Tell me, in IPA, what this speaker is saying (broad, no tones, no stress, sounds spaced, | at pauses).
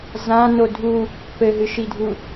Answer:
z ã n o dʱ u | p ɘ ɦ ɨ ʃ i dʱ u